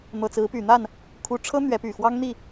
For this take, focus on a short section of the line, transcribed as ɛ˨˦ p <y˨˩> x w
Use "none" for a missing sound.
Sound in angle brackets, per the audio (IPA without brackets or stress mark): y˨˩